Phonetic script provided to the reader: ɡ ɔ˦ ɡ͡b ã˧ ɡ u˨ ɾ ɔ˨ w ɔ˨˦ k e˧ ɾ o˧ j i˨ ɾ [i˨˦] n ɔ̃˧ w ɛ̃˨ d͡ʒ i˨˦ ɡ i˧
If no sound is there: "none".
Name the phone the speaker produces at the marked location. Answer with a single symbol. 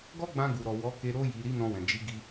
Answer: i˨˦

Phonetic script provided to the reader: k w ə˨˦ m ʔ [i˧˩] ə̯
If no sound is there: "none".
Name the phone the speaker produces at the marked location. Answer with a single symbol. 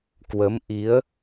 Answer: i˨˦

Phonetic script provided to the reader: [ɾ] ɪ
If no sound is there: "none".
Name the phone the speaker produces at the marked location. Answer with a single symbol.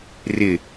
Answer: r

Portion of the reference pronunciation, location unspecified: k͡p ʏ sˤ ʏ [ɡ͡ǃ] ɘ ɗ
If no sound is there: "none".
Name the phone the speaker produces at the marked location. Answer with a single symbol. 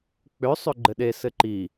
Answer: ɡ͡ǃ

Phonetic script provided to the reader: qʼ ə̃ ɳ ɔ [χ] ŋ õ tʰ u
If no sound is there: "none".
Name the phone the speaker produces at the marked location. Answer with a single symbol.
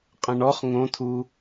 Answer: χ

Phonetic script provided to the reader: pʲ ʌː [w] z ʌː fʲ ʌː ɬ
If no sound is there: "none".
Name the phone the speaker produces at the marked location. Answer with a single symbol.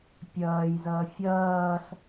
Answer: j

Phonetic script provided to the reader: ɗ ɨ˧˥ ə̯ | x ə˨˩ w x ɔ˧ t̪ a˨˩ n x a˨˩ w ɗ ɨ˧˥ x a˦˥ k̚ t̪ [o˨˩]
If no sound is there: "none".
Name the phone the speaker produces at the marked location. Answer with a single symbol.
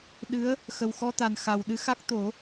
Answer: o˨˩˦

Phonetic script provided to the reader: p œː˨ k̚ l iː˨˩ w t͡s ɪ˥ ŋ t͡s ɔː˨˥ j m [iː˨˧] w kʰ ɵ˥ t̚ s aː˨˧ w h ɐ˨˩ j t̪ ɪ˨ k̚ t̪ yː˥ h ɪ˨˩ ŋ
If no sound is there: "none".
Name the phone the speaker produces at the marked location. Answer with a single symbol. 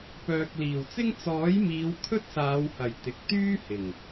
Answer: iː˨˧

